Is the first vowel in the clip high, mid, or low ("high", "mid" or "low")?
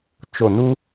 mid